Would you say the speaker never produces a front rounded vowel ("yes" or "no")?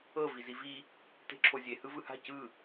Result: yes